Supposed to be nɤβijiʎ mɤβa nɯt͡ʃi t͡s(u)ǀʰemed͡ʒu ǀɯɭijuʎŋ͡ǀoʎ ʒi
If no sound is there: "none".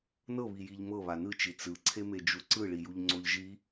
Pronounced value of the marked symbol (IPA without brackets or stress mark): ɯ